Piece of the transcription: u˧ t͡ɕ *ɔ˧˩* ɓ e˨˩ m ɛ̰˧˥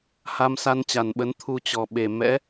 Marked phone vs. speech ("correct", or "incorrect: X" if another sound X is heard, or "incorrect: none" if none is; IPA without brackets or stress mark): incorrect: ɔ˨˩